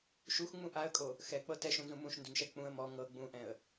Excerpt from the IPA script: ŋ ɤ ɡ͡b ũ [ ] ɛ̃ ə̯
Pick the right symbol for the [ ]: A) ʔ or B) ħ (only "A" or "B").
A